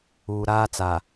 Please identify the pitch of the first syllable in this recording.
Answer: low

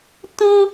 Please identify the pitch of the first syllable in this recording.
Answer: high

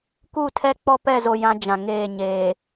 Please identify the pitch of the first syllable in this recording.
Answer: falling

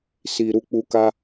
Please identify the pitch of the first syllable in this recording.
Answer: low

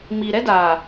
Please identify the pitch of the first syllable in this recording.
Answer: low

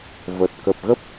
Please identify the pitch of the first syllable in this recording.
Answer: low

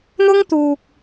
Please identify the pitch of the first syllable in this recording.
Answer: high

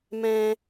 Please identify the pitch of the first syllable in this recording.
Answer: high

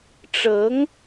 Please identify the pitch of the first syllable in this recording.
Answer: rising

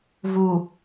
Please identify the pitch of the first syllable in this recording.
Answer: low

